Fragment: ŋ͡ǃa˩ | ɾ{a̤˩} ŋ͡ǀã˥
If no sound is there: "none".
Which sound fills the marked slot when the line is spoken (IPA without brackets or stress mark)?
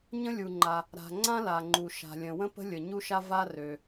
a̤˩